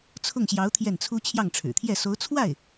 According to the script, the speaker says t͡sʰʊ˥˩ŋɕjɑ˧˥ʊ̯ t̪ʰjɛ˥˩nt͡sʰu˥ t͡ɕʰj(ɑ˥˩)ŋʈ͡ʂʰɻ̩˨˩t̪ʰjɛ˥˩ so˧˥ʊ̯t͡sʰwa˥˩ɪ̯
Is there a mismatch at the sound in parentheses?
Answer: no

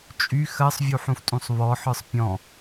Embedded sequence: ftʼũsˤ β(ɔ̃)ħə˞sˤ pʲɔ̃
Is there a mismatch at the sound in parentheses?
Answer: yes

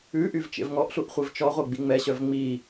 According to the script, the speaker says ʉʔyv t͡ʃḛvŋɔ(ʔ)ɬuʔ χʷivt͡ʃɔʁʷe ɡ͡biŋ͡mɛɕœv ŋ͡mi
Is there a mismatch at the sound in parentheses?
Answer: no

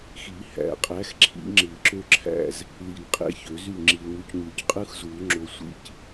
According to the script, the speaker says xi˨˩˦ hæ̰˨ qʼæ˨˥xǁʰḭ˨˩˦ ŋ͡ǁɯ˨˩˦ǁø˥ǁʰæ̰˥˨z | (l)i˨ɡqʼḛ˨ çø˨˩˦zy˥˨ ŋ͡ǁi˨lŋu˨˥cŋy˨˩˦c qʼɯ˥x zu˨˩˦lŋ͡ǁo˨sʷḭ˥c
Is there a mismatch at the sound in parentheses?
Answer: no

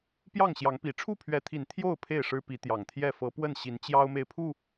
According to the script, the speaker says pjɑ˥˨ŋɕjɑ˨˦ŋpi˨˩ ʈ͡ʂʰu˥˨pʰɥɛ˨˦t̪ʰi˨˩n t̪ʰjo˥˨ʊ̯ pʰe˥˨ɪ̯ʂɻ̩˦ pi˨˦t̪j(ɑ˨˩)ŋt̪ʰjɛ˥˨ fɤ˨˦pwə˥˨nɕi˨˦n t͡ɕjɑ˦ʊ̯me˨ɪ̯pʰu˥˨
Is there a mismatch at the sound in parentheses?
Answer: no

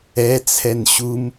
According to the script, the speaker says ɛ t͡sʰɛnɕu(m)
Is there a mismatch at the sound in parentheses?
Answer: no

